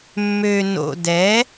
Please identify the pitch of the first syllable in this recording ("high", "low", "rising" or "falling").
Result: low